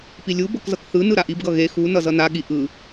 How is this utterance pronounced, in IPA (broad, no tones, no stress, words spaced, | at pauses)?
pilʲu bʌkzʌkθɯnɯ ɾaʔibɡʌ ɣe xu nʌzʌnaɠi ʔɯ